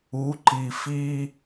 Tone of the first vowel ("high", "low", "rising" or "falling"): rising